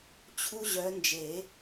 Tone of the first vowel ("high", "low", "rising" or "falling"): high